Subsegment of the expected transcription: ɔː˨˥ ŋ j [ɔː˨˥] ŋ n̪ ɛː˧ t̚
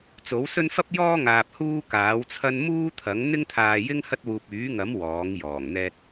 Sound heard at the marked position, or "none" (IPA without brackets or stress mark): ɔː˨˩